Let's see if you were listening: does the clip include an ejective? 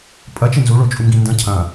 yes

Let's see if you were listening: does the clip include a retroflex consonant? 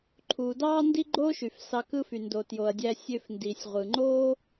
no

